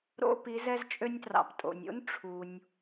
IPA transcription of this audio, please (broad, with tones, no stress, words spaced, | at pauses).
ɾo̰˧ pi˩˧zɛ˧zt͡ʃʼø˧nʲtrɑ̰˩p tʼo̰˩nʲo̰˥n ʈ͡ʂʰu˩nʲ